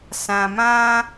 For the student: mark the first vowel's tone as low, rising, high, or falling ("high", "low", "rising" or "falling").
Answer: low